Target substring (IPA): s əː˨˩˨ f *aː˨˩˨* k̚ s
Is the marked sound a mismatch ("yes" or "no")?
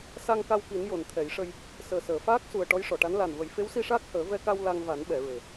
yes